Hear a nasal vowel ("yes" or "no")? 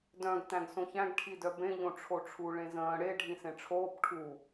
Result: yes